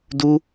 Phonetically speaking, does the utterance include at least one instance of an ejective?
no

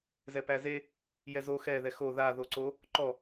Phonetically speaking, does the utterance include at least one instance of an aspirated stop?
no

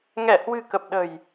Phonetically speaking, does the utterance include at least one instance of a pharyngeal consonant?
no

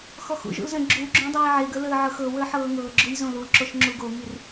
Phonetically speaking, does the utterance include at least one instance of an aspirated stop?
no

